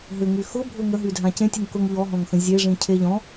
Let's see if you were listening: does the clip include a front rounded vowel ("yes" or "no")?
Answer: yes